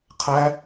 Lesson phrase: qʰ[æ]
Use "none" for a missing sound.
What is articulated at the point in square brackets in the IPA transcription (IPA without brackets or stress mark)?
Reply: æ